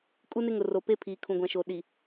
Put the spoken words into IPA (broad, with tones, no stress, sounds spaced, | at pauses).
kʼ u˦ n ɪ˦ ŋ ʊ˨ r o˨ p e˦ pʰ iː˨ kʰ ũ˨ ɡʷ ã˨ ʃ o˨ ɗ i˨